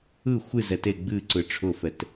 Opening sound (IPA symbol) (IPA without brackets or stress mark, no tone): ɯ